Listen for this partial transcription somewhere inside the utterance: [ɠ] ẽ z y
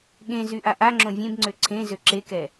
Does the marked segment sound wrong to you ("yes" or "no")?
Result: no